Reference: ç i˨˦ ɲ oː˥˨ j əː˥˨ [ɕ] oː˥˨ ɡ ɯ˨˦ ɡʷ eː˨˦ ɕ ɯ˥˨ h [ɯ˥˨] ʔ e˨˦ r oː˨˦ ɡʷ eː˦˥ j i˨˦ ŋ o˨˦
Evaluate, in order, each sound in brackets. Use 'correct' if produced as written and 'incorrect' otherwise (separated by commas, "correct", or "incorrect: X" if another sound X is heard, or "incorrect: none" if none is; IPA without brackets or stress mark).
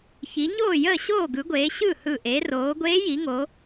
correct, incorrect: ɯ˧˩